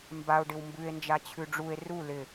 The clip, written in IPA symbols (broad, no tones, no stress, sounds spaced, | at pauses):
m b a o̯ ɖ ɪ w m b ʉ e̯ n d͡ʒ a t͡ɕʰ ʉ ɖ͡ʐ u e̯ r u l ɪ